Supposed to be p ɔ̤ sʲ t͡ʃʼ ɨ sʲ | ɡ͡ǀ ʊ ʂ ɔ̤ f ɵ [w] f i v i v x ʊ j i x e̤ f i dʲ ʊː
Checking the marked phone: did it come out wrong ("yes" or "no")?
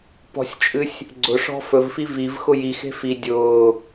yes